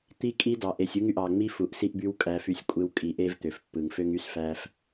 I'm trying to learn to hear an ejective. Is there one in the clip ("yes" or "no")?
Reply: yes